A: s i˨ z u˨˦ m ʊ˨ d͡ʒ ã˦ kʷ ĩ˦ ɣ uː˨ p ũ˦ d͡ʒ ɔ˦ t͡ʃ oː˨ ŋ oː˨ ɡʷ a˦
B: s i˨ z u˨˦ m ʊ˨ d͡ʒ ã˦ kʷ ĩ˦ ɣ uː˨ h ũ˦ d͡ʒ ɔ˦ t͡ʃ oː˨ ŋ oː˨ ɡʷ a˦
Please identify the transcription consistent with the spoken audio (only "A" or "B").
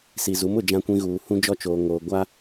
B